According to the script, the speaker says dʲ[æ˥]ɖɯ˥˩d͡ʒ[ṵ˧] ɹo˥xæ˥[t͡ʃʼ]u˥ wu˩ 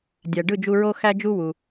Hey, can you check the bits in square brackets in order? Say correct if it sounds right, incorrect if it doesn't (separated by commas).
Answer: incorrect, incorrect, incorrect